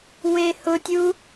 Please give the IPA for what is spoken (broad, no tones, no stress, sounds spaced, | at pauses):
w e h ʊ tʲ u